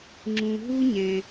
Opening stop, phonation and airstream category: click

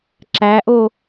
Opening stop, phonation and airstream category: click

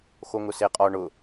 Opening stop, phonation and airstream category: ejective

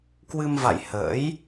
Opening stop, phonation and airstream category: plain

